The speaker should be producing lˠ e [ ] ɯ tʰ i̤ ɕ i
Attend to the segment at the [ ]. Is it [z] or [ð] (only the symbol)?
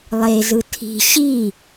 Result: z